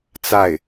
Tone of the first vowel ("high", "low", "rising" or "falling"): falling